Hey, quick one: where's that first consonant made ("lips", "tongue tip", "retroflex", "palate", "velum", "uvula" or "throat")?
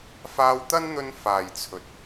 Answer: lips